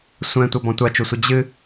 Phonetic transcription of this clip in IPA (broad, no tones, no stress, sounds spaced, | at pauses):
sʷ ɛ̃ tʷ ɐ b ɔ̃ tʷ a t͡ʃ u sʷ ɨ d͡ʑ ɨ